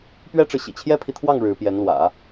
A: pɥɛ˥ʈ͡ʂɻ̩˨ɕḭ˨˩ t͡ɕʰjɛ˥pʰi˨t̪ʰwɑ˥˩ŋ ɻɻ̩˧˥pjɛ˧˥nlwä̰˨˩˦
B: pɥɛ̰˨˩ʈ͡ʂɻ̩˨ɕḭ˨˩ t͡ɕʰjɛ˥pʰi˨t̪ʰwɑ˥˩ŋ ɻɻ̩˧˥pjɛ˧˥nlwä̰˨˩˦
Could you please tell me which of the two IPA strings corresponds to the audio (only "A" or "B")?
A